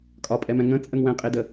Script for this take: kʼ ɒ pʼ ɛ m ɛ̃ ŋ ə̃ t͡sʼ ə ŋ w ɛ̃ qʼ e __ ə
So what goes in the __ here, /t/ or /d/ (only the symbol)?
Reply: d